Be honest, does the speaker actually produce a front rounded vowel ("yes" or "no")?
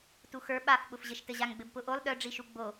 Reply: yes